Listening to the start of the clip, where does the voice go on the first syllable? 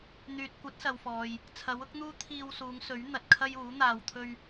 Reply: low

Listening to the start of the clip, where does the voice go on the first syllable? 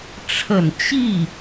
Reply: low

